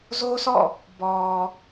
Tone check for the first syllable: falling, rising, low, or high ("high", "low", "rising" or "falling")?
high